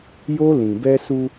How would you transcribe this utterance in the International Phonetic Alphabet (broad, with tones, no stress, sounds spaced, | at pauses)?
j o˦ l ĩ˨ b ɛ˦ s u˦